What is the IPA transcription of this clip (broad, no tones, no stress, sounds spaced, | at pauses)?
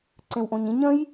ǀ ẽ w ʔ õ ɲ ĩ ɲ ə̃ j